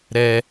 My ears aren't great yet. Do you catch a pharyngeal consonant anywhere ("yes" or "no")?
no